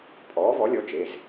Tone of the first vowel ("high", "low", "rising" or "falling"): rising